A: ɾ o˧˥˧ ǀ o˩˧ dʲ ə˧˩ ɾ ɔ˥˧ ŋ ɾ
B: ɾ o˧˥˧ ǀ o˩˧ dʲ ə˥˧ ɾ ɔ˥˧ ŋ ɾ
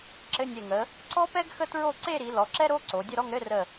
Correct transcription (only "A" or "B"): B